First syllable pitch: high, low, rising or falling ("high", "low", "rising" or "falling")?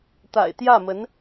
low